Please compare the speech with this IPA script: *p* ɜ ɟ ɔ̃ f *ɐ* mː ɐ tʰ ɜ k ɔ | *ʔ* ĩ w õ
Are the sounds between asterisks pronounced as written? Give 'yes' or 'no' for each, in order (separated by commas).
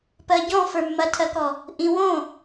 yes, no, yes